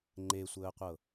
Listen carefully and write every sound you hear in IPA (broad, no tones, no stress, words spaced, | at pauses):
ŋ͡ǃesʷəːqʷɤ